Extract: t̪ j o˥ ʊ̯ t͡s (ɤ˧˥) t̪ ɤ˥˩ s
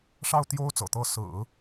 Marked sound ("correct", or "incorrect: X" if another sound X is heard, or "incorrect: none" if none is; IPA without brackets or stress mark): incorrect: ɤ̰˨˩